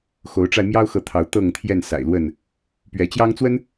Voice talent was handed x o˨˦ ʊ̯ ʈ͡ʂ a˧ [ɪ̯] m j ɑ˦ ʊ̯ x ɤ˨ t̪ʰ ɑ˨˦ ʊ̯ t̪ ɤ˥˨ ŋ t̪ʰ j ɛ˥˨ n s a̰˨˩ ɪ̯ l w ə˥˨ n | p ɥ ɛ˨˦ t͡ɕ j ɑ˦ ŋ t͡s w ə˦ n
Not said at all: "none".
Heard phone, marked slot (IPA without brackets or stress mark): ɪ̯